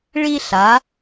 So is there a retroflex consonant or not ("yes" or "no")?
yes